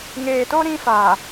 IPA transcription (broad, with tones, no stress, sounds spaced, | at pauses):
ŋ eː˨ t o˦ ɾ ĩ˦ f aː˨